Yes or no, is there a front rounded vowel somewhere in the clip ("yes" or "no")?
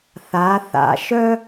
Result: yes